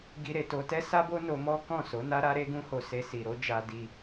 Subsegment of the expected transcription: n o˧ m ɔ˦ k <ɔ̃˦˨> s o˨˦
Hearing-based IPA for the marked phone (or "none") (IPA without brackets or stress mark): ɔ̃˦˨